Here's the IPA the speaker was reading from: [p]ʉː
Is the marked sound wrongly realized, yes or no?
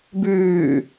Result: yes